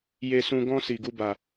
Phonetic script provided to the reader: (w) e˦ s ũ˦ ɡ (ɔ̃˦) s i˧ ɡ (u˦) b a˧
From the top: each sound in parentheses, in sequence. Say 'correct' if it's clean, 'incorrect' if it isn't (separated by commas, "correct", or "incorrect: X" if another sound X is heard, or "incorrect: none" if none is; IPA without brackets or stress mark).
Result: incorrect: j, correct, correct